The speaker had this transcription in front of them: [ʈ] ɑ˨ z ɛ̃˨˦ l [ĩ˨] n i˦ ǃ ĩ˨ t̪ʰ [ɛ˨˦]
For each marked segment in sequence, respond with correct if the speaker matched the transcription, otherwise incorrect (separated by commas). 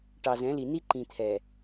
correct, incorrect, incorrect